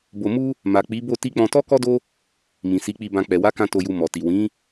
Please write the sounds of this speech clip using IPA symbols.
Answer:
b o˧ m u˦ | m a˨ k͡p i˨˦ b o˦˨ t i˧ k͡p ɔ̃˧ t ɔ˦ k ɔ˦ d o˦ | m ĩ˨ s i˨˦ k͡p i˧ b ã˧ k͡p ɛ˨ w a˨˦ k ã˧ t o˧ j u˧ m ɔ˨ t i˨ w ĩ˨˦

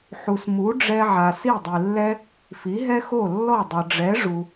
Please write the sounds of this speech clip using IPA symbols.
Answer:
ħ u˩ s m u˩˥ ɖ͡ʐ ɛ˧ ʕ a˩ s i˥˩ dˤ i˩ lː ɛ˥ | f i˩˥ ɦ ɛ˥ x o˥˩ lː ɔ˥˩ dˤ ʌ˩ ɖ͡ʐ ɛ˩˥ ʐ u˩

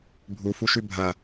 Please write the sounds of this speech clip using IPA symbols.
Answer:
bʱ u f u ʃ ʉ bʱ ɐ

